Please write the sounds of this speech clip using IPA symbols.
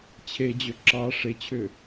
t͡ɕʰ e d͡ʑ ø ǁ ɑ ʂ e t͡ɕʰ ʏ

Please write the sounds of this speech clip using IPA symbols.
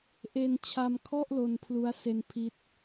ʔ e˧ n t͡ɕʰ a˧ m kʰ ɔ˥˩ ʔ l o˧ n pʰ l u˦˥ a̯ s e˧ n pʰ i˦˥ t̚

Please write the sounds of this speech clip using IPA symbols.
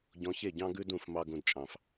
ɟ ɔ̃˧ ç e˦˨ ɟ ɑ̃˦ ɡ ʉ˦ d ũ˦˨ f m ɑ˧ ɡ ũ˧ d t͡ʃʼ ɑ̃˨ f

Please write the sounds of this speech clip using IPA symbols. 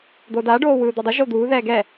d̪ o d a ɖ oː w ɯː d̪ ɔ dˤ ɯ ʒ o d̪ uː ð ɛː ɡ ɛ

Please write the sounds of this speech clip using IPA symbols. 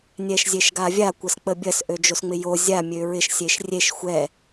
nʲ ɛ ʃ zʲ e ʃ ɡ a vʲ a kʷ ɐ s k͡p ə bʲ ɐ s ʔ ø d͡ʒ o s ŋ͡m ɪ j o zʲ a mʲ ø ɹ ɪ ʃ sʲ e ʃ rʲ e ʃ xʷ ɛ

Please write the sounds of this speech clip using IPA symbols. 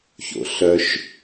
ç o̰ ɬ œ ʃ

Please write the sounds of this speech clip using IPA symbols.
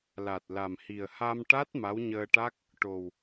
l a˨˩ t̚ l a˨˩ m h i˨˩ ə̯ h a˧ m ʈ a˦˥ t̚ m a˧˥ w ɲ əː˧ ʈ a˦˥ k̚ | ʈ o˨˩ w

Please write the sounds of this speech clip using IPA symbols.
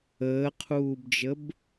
əː qʰ uː b d͡ʒ ə b

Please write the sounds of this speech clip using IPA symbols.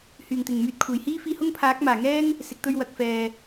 h yː˨˩ ŋ t̪ ɪ˨˩ ŋ m yː˧ t̚ kʷʰ e˨˩ j h iː˥ f iː˧ h ʊ˥ ŋ pʰ aː˨˥ k̚ m aː˨˩ ŋ ɛː˥ ŋ | s ɪ˨˥ k̚ t̪ ɵ˥ ɥ w ɐ˨˥ k̚ f ɛː˨

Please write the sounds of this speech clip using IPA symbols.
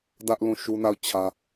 d ä˦ ʔ l ũ˦˨ ʃ u˦ n a˦˨ ʊ̯ t͡ɕʰ ä˦

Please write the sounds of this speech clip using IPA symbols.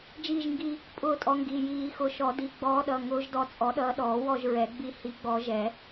d͡ʒ iː˦˨ ʒ ŋ ɡ i˦˨ | pʼ ʊː˦˨ tʼ ɔ˨˦ ŋ ɡ i˩˧˩ j iː˨˩˦ x ʊ˨˩˦ ʃ ɔ˨˩˦ d i˩˧˩ ɡ͡b ɔː˨˦ ɗ ʌ˩˧˩ ŋ ʊː˨˦ ʒ d ɔ˨˦ t͡sʼ ɔ˨˩˦ ɗ ʌː˨˦ ɗ ɔː˨˩˦ w ɔ˦˨ ʒ ɹ ɛ˨˩˦ ɡ͡b i˨˦ h i˨˦ ɡ͡b ɔ˨˩˦ ʒ ɛ˨˩˦

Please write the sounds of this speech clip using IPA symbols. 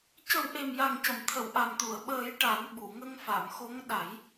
c ə˨˩˦ w ʔ e˨˩ m j a˨˩ ŋ c ə˨˩˨ m t̪ʰ ə˨˩˨ w ʔ a˨˩ m t̪ u˨˩˨ ə̯ ɓ əː˨˩˦ j ʈ a˨˩˦ n ɓ u˨˩˨ ŋ ə˧ ŋ f a˨˩˨ m x o˧˥ ŋ ɗ a˨˩˦ j

